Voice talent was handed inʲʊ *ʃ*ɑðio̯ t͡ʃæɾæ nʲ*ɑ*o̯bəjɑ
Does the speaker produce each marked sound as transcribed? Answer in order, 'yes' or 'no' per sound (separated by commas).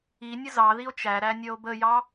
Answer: no, no